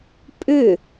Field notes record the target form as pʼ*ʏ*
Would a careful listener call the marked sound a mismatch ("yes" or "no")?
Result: no